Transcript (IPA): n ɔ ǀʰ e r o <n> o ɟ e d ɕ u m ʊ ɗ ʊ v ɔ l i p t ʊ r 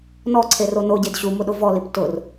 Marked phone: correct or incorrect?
correct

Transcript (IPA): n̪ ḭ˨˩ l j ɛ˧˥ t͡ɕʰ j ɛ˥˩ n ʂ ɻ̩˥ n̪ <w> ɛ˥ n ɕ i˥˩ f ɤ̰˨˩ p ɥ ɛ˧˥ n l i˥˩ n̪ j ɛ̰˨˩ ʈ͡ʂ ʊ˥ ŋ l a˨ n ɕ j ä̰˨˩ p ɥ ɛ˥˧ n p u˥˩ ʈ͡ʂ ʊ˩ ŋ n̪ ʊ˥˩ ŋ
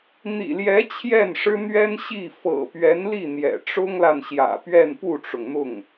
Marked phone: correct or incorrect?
incorrect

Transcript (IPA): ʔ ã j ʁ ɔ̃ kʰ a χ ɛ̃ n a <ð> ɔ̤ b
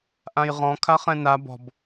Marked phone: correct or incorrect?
incorrect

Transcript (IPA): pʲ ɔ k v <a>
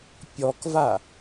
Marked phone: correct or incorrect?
correct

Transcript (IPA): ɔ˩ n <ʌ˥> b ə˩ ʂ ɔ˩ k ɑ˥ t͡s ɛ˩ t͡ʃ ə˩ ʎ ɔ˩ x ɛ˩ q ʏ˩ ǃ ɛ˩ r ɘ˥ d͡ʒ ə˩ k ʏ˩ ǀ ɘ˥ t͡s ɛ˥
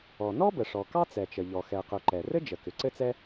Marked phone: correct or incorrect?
incorrect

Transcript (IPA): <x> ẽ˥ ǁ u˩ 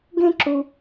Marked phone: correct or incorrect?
incorrect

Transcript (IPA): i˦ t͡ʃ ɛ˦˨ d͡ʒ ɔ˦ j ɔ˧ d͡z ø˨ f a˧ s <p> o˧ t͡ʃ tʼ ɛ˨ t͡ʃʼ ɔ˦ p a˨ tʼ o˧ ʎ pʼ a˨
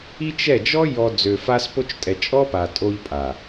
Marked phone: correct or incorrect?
correct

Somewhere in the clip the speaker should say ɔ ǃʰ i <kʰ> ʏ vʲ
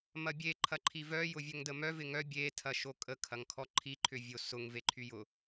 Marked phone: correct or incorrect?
incorrect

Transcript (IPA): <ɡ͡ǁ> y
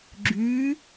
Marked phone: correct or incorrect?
correct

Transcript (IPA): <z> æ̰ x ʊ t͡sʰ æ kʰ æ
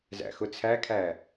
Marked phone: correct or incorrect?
correct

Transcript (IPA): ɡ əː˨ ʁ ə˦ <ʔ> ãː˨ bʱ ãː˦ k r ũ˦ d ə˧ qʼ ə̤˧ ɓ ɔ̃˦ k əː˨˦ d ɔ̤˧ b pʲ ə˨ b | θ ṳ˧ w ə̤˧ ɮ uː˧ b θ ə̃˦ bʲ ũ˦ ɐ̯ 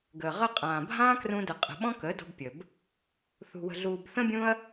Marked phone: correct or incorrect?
incorrect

